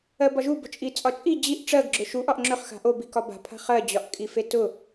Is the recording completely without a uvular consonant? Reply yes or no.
no